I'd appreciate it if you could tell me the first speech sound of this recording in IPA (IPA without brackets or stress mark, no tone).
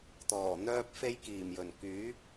t̪